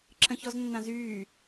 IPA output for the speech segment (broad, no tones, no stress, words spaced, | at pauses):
ǁə̃çɔznːãzyː